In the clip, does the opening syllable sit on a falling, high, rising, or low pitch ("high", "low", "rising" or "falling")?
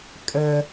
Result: high